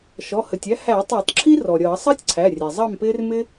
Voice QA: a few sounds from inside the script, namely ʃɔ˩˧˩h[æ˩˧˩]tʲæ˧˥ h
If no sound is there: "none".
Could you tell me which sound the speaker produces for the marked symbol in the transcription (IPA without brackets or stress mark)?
ə˩˧˩